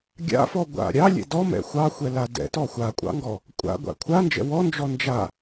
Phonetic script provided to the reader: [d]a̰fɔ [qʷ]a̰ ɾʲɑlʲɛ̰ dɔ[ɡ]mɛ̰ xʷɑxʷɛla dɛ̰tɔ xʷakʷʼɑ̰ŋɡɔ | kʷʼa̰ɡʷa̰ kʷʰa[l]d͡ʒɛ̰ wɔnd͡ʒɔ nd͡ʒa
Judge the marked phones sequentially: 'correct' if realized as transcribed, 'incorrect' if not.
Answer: incorrect, incorrect, incorrect, incorrect

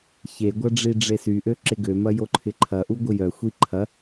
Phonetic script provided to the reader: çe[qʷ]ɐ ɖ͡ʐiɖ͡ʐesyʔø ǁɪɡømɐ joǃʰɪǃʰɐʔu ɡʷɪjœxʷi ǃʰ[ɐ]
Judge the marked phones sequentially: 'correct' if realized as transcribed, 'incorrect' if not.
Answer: incorrect, correct

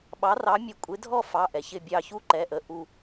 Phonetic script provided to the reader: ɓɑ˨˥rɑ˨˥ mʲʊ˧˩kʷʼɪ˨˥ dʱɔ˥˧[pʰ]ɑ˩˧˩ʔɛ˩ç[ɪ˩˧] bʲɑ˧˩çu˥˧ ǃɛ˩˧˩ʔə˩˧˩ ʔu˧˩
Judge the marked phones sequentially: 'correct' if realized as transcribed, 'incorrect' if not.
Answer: incorrect, incorrect

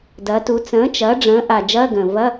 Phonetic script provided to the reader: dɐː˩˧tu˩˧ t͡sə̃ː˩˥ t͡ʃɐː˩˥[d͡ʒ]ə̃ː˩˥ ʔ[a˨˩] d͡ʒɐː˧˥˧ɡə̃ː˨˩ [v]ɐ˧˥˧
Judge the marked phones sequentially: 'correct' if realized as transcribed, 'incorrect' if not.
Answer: incorrect, correct, correct

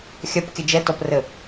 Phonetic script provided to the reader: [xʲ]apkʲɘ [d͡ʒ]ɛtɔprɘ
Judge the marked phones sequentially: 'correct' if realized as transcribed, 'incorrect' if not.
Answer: correct, correct

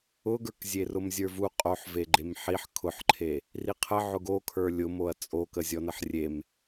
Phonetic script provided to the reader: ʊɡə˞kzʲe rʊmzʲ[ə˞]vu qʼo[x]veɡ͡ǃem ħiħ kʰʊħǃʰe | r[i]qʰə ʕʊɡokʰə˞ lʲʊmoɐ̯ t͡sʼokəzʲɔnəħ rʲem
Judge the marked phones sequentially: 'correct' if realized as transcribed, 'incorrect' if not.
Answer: correct, incorrect, correct

